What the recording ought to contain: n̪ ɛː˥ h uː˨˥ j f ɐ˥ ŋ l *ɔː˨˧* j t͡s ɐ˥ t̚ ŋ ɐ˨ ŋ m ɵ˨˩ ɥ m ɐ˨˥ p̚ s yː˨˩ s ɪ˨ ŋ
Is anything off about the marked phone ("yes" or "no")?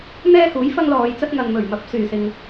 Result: no